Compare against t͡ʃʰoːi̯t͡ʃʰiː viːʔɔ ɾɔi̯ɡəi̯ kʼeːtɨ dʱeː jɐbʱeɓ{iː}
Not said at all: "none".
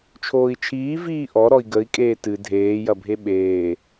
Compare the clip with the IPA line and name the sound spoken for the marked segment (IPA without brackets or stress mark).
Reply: eː